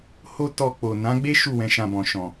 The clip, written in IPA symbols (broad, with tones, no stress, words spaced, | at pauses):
ho˦tɔ˧k͡po˨ nã˨˦ɡ͡be˦ ʃu˦˨wɛ̃˨˦ʃã˧bɔ̃˨ ʃɔ̃˨